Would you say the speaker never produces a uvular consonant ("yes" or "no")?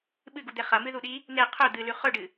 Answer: no